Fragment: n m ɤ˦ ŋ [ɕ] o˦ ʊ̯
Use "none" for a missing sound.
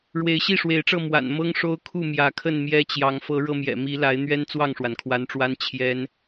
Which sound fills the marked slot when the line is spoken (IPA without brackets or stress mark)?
ʂ